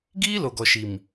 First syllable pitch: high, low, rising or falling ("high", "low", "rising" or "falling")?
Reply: high